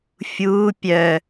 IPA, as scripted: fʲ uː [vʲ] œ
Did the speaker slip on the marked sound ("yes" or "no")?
yes